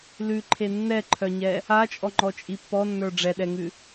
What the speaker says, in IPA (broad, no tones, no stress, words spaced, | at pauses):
lʉǃʰe nːɛǃʰœɲɛ | at͡ʃʼɔŋ͡ǃɔt͡ʃʼi pːɔnːə˞ ɖ͡ʐɛɗɛŋʉ